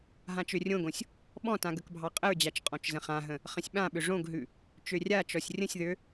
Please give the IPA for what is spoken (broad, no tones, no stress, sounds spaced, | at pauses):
ɦ ã t͡ʃ ø rʲ õ ɡ õ sʲ | ɓ ɔ̃ t ã ɡ ə k bʱ ɑ qʼ ə ɹ d͡ʑ a t͡ʃ qʼ ɔ̃ t͡ʃ z ə̃ χ ã ɦ ə̃ | χ ə̃ sʲ ɓ ã ɓ ʏ ʐ õ ɡ ɦ ʉ | t͡ʃ ø rʲ a t͡ʃ ɔ sʲ rʲ ə̃ sʲ ð ø